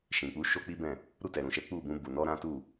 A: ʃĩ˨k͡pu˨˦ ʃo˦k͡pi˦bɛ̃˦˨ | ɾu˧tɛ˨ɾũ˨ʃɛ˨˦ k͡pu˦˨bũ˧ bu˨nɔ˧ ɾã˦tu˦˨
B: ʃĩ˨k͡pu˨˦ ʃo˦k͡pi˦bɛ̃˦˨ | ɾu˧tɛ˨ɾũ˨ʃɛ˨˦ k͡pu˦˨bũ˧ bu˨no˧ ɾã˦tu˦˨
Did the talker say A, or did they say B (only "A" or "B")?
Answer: A